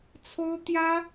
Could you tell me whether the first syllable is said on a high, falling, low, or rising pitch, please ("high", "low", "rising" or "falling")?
high